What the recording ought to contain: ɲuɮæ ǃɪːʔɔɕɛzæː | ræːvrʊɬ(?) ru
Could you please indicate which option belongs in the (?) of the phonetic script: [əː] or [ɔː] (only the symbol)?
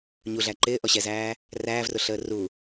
əː